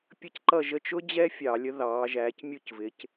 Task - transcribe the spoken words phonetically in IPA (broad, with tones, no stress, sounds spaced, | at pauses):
pʲ ə˦ c ǃ ʌ˦˨ ʒ ə˦˨ t͡ʃ ʊ˦ d͡ʑ ɛ˦ fʲ ɑ˧˩˧ lʲ ə˨˥ ð ɑː˩˧ ʒ æː˩˧ c mʲ u˦˨ c v ɪ˩˧ c